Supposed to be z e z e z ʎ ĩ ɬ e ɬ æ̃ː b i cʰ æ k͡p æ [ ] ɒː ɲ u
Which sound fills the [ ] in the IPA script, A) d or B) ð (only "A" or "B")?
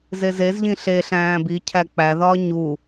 B